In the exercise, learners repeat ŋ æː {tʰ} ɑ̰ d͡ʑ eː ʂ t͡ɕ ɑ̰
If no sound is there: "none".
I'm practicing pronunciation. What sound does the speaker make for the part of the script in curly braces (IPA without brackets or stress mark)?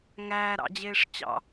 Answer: ɾ